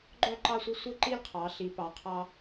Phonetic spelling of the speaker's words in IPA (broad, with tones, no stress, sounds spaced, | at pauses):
ɡ͡ǃ œ˦˨ ǃ ɑ˦˨ sʷ œ˦˨ sʷ e˦˨ ǃ i˦˨ l qʰ ɑ˩˧ ɬ i˩˧ p ɑ˩˧ qʰ ɑ˦